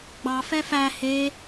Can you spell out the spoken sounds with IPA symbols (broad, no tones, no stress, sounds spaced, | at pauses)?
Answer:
ɡ͡b ɑ f ɛ f æ h e